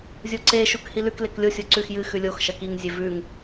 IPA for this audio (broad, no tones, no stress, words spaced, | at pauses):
zʲoǀe ʃukhilʉk leklʲo sʲoǀʉx jɨ xʉlʲox ʃɐkiŋ zʲevʉŋ